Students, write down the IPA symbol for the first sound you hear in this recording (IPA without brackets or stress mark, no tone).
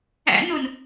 æ̰